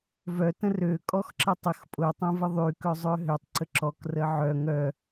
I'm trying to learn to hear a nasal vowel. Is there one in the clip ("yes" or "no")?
yes